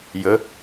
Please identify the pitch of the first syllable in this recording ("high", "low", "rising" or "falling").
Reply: rising